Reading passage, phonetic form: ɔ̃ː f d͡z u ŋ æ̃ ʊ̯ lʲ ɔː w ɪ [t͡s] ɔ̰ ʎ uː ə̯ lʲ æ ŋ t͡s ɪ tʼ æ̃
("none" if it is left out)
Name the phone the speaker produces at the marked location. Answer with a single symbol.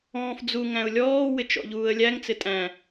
t͡ʃ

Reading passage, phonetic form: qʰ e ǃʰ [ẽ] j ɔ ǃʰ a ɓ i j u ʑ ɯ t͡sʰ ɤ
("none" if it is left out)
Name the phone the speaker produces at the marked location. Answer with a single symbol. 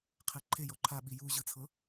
e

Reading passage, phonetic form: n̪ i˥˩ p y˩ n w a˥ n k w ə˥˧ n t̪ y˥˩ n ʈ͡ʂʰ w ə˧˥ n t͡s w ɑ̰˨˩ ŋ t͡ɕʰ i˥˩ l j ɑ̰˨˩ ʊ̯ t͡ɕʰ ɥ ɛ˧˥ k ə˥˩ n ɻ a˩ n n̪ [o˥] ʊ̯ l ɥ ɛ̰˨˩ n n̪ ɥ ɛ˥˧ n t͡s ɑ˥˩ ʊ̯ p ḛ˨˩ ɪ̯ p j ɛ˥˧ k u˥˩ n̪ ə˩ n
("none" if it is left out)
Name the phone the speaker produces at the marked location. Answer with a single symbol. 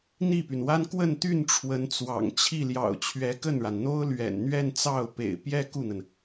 o˥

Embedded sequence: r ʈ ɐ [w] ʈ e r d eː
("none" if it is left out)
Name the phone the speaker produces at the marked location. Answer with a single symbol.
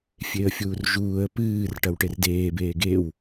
w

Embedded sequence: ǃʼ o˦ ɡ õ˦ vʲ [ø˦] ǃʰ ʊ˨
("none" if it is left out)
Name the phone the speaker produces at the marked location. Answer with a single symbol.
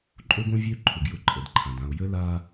ø˦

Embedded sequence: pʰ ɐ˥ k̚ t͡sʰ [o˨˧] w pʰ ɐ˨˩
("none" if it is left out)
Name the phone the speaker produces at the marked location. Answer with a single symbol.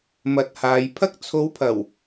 o˨˧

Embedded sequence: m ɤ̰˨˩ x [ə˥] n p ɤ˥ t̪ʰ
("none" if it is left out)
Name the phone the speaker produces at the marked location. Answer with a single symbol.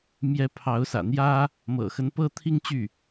ə˧˥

